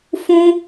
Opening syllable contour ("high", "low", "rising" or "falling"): high